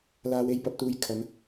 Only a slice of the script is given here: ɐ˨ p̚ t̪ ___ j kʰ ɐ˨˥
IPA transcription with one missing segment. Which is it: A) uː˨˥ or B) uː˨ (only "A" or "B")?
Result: B